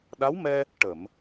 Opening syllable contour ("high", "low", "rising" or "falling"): rising